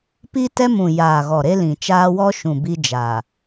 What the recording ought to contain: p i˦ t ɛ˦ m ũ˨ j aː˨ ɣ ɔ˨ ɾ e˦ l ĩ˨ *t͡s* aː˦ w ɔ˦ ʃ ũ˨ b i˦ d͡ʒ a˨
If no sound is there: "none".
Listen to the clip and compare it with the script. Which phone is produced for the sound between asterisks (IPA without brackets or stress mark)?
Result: t͡ʃ